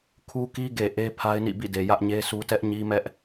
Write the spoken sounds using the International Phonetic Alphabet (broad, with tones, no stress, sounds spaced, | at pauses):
kʰ u˦ k i˦ ɡ e˨ ʔ e˦ pʰ a˦ ɪ̯ n ḭ˦˨ b ḭ˦˨ d e˨ j ä˦ ʔ ɲ e˦ sʰ u˦ t ɛ˦ ʔ ɲ i˦ m ɛ˦ ʔ